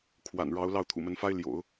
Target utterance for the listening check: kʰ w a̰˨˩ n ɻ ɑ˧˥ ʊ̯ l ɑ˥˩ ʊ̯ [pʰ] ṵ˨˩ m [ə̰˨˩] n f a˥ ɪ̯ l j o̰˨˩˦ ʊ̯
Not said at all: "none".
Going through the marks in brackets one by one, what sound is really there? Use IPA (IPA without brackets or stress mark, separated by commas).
t̪ʰ, ə˧˥